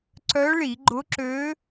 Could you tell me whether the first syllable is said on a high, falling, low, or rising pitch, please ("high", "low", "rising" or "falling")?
rising